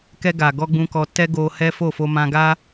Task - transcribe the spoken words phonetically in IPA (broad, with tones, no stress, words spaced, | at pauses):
kɛ˧ɡa˨ɡɔ˧ ɡ͡bũ˧kɔ˧ tɛ˦ɡo˧hɛ˦fo˦˨ fo˧mã˧ɡa˦